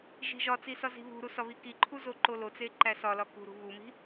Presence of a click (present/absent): present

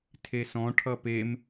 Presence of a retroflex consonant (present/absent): present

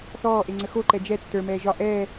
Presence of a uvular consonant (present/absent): absent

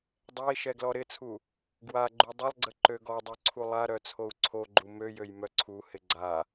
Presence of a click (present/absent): present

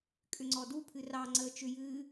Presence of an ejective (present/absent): present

